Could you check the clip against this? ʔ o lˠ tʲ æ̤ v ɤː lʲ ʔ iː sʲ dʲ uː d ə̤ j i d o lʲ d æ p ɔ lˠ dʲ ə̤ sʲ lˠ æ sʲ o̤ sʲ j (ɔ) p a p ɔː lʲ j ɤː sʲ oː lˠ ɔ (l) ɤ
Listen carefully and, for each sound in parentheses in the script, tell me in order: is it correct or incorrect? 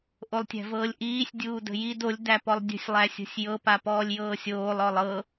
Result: incorrect: ɤ, incorrect: lˠ

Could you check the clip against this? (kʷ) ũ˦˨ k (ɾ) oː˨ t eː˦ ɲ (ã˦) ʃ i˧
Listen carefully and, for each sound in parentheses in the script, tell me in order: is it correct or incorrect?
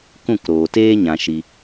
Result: incorrect: k, correct, incorrect: ã˧

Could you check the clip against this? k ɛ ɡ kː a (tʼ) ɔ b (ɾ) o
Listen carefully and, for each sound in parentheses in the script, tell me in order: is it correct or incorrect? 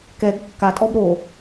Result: correct, correct

